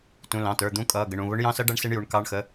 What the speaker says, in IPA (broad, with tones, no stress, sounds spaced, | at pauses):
t ũ˩˧˩ l ɑ̃˩˧˩ t ə˞˩˧˩ d̪ ũ˧˥ kʼ ʌː˩˧˩ ɡ ə˩˧˩ ɳ ũ˩˧˩ β ʊ˧˥ ɳ j ɑ̃˧˥ s ʌ˧˥ ɖ ʌ˧˥ ɳ s ɪ˧˥ ɳ j u˩˧˩ ɳ k ɑ˧˥ ɳ x ə˩˧˩